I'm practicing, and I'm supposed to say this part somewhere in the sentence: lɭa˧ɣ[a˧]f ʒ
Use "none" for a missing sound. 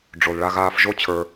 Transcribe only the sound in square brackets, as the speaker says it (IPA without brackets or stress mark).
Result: aː˧